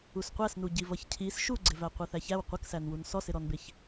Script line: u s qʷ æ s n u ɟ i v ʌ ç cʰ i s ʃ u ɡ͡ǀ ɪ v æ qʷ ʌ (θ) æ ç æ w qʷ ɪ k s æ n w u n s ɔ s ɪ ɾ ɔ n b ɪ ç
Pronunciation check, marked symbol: correct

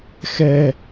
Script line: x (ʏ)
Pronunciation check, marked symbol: incorrect: ɛ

